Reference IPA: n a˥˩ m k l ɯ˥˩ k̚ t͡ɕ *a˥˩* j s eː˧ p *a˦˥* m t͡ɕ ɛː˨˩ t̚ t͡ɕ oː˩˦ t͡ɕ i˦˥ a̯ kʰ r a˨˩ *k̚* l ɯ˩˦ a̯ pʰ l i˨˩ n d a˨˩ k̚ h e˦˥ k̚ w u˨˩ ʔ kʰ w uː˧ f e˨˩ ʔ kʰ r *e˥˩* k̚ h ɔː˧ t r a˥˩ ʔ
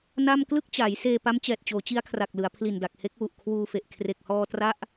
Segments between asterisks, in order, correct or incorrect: incorrect, correct, correct, incorrect

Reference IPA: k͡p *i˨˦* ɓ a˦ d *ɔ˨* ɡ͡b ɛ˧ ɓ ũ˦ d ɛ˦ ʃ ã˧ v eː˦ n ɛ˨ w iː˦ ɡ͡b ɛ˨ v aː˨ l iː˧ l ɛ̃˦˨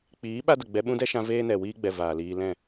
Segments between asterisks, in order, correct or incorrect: incorrect, incorrect

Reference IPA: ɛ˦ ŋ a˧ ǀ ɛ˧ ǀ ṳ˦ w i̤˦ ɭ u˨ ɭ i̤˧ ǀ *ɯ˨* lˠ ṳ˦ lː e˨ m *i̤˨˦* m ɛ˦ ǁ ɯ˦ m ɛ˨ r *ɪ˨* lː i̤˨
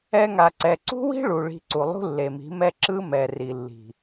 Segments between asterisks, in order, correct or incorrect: incorrect, correct, incorrect

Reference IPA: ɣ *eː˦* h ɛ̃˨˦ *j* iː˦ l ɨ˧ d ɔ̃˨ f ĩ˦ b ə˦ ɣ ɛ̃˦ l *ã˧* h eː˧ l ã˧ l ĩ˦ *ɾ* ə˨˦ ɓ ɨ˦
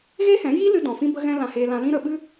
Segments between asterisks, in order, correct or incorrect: correct, correct, correct, correct

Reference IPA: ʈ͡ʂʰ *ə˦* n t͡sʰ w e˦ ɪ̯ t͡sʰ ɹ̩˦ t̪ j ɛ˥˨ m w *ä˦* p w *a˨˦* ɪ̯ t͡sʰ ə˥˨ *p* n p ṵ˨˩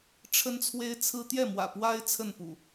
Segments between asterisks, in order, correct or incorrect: correct, incorrect, incorrect, incorrect

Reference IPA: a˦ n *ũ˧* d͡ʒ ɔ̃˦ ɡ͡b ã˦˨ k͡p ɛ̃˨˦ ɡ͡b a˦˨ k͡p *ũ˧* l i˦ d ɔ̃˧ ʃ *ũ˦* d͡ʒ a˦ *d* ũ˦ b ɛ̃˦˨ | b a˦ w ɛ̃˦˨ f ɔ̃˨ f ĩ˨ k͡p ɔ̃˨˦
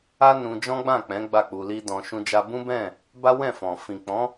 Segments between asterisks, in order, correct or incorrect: correct, incorrect, correct, incorrect

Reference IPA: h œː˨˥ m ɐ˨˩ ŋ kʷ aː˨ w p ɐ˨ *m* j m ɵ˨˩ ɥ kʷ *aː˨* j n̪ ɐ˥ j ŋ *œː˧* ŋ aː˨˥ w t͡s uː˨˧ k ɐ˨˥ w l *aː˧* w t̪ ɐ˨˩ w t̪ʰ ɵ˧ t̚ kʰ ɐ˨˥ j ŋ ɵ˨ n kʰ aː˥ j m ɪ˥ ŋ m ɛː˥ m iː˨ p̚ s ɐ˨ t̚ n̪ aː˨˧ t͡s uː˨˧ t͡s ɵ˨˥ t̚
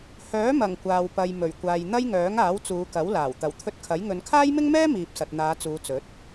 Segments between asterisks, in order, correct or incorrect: incorrect, correct, incorrect, incorrect

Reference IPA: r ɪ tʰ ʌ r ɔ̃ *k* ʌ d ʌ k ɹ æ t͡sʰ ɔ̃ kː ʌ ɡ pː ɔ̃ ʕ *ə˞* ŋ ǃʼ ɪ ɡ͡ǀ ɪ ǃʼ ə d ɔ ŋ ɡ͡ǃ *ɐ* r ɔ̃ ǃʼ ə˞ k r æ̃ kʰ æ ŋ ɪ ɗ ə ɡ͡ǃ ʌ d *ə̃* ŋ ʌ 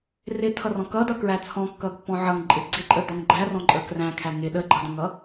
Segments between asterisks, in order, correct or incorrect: correct, incorrect, incorrect, correct

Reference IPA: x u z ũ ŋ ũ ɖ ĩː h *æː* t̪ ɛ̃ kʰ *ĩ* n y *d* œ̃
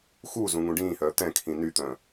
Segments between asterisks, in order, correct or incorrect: incorrect, correct, incorrect

